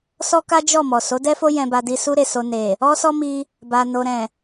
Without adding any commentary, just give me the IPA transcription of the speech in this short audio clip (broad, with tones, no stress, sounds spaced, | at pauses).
s ɔ˦ k a˦ d͡ʒ ɔ˦˨ m ɔ˨ s o˨˦ d ɛ˦ f o˦ j ɛ̃˧ b a˧ d i˦ s u˦ ɾ e˦˨ s o˧ n e˨ | ɔ˦ s ɔ˦ m i˧ | b a˨ n o˨ ɾ ɛ̃˨